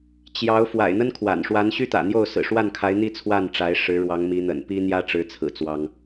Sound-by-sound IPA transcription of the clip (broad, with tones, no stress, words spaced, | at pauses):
t͡ɕjɑ˧˥ʊ̯ fwa̰˨˩ɪ̯ n̪ə˥nkʰwa̰˨˩n ʂwa˧˥nɕy˥t̪ä̰˨˩n̪jo˥˩ʊ̯ sɹ̩˨˩ʂwa˥˩nkʰa˧˥ɪ̯ n̪i˥˧ t͡sʰwa˥˩nʈ͡ʂa˧˥ɪ̯ ʂɻ̩˧˥ ɻwɑ˧˥ŋmi˧˥ n̪ə̰˨˩npi˥ n̪jä˥ʈ͡ʂɻ̩˧˥t͡sʰɹ̩˨˩ t͡swɑ˥ŋ